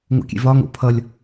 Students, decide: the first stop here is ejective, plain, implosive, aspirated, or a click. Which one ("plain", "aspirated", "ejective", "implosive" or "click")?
plain